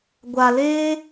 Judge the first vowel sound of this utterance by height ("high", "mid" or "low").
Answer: low